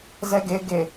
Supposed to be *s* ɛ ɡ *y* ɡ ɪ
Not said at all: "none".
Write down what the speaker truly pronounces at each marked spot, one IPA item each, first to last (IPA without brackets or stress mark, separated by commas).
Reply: z, ɪ